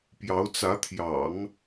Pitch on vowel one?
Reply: rising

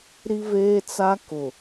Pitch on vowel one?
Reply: high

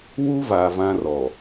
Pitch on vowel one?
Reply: high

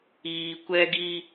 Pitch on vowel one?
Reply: low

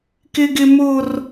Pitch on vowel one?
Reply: high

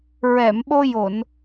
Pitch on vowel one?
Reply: low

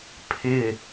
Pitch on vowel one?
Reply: falling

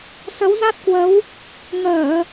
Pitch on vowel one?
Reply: rising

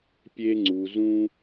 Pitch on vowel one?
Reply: high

